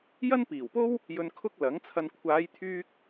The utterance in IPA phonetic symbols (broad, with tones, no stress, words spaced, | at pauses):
jɐ˥npiː˨˩wpo˥w | jɵ˧nkʰʊ˥k̚ lɐ˨˥ŋt͡sʰɐ˧n kʷʰaː˨˧jt̪ʰyː˧k̚